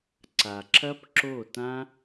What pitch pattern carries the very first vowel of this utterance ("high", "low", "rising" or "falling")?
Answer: low